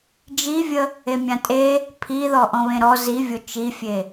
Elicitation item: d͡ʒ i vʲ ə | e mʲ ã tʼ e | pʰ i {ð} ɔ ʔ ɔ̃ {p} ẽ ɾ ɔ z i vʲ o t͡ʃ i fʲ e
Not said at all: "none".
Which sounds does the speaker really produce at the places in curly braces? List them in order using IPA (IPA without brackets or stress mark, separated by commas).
ð, β